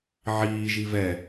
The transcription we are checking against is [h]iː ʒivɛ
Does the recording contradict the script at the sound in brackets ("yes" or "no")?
yes